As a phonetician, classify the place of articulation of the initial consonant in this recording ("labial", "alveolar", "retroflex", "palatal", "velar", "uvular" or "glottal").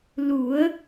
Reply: alveolar